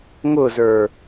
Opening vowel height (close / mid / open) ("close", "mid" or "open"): close